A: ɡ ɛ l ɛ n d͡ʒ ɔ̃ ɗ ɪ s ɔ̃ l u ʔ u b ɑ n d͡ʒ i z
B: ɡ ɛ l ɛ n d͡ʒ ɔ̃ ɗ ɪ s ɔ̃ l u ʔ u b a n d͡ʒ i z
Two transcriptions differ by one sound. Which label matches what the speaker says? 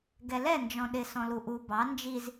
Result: A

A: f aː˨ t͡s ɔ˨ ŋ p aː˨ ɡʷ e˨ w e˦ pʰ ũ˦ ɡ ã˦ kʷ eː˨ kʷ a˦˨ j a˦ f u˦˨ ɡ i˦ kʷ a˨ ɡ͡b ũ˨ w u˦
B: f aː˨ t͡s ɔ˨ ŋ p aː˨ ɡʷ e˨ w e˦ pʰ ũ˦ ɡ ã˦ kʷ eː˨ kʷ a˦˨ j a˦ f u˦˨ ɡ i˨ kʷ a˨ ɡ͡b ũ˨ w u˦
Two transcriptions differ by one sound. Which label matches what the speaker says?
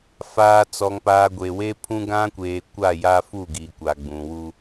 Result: B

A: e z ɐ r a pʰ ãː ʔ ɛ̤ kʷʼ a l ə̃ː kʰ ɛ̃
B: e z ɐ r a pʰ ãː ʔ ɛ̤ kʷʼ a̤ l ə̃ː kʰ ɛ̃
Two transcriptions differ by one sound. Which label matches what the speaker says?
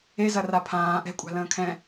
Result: B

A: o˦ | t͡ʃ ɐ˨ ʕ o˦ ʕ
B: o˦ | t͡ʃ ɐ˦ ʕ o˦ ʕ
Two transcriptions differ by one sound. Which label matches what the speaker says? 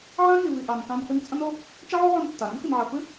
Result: B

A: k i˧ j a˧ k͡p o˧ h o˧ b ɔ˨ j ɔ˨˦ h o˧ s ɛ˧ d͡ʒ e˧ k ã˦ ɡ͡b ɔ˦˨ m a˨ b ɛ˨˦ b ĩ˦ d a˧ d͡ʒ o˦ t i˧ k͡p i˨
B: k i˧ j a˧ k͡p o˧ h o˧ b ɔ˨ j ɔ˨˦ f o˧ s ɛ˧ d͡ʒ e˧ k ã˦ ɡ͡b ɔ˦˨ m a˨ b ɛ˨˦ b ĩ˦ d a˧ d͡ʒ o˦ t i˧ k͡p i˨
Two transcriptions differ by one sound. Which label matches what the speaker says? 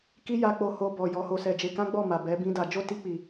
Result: A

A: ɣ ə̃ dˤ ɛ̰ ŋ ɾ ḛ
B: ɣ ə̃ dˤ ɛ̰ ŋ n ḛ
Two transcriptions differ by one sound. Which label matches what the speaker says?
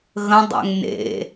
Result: B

